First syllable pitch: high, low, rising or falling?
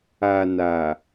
low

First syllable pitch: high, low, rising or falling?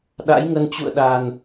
rising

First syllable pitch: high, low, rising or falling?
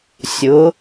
rising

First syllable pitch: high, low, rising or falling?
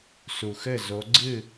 low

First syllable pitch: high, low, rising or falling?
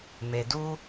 low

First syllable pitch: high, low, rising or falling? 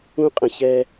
high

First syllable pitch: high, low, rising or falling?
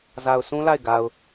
low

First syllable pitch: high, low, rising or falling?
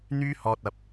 high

